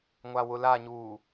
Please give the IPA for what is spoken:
ŋʷawʊlaɲuː

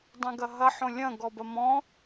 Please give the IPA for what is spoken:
dˤɛ̃ɡɐɦɐ ħõlʲɐ̃ ɡɔbɐmɔ̃

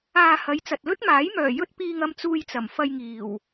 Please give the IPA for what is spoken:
aː˧hɐ˨˧jt͡sɐ˨t̚ lɵ˥t̚maː˨˥j mœː˨˩jɵ˧t̚piː˨ŋ ɐ˧m t͡suː˧jt͡sɐ˨˩mfɐ˧j ŋiː˨˩w

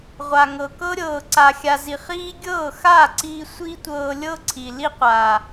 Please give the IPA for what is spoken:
ʁʷa˨ŋɤ˨ kɤ˦ɾʲɤː˨ ǀa˨xʲa˨zi˨χiː˦ ɡʲɤː˦˨xaː˦˨ǀiː˧ sʷi˦tʷɤː˧lʲɤ˦ ǀʰi˨li˦qʷa˨

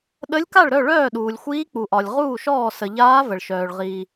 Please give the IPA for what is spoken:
ɗə˧˥lʲka˥˩ɭɾœ˥˩ ɭœː˥˩ɗuː˩lʲxʷiː˧˥ k͡pu˩ʔɒ˩lʲ ʁuː˥˩ʃɔː˥˩ sə˩ʎaː˧˥ və˩ɭʃœː˩ɭ ʁiː˩

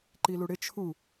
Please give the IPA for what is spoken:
ǃiluɽɪ t͡ʃʰu

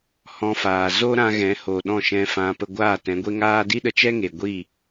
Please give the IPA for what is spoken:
hɔ̃˧faː˨ zo˦ɾã˧ ɣɛ̃˨˦ho˨ɗɔ̃˦˨ ʃɛ̃˧fã˧ pə˧ɡʷaː˦˨tɛ̃˨˦ɡʷe˦ ŋaː˦ di˦ɗə˧t͡ʃɛ˦ ŋe˧ ɡʷi˦˨

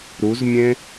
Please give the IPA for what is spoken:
ɾuzmʲẽ

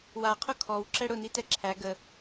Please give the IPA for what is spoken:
waqʰʊ kʰɔwǁɛ ɽʊnitɛ ǁʰæ ɡə

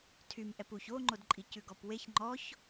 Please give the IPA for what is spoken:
tʰym ʔɛpuç oŋ͡ǃodǃʼi cʉɡɔpweç ŋ͡ǃɔç

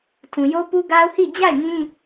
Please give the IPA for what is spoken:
tʰũ˨jo˦pu˦ɡa˦ʊ̯ hi˦˨ d͡ʑa˦˨ɪ̯ŋĩ˦

